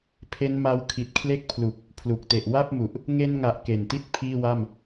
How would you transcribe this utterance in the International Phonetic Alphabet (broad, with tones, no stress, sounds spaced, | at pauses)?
pʰ e˦˥ n m a˦˥ w kʰ i˨˩ t̚ kʰ l e˥˩ k̚ pʰ l u˨˩ k̚ | pʰ l u˨˩ k̚ t e˨˩ ʔ w a˥˩ p̚ m u˨˩ ʔ | ŋ e˧ n ŋ a˨˩ ʔ k e˨˩ n t i˥˩ t̚ pʰ iː˥˩ w a˥˩ m